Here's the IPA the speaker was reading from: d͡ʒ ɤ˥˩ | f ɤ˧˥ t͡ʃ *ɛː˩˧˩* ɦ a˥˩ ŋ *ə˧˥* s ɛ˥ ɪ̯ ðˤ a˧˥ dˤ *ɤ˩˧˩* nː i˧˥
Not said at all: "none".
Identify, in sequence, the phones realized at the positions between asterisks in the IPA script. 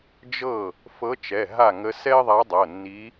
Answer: ɛ˩˧˩, ə˧˥, ɤ˩˧˩

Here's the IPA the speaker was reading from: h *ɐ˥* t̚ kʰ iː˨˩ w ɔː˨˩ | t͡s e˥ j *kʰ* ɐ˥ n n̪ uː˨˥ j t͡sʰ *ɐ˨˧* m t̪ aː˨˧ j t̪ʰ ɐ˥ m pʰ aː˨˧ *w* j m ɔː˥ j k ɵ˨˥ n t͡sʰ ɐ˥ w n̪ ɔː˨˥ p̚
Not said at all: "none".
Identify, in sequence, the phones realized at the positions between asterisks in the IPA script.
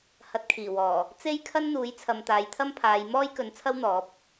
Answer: ɐ˨˥, kʰ, ɐ˨, none

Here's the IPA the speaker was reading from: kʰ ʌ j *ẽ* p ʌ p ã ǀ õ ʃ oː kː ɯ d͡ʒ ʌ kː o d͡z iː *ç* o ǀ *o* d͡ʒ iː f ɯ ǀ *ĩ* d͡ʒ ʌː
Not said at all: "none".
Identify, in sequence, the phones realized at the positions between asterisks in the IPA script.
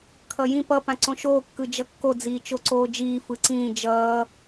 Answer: ĩ, t͡ʃ, oː, ĩː

